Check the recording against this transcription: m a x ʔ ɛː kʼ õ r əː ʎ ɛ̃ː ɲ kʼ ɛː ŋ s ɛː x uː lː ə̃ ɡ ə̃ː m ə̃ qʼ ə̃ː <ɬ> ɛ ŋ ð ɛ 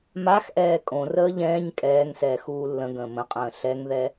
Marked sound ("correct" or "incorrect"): correct